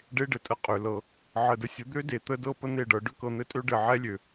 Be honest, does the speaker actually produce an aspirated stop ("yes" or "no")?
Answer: no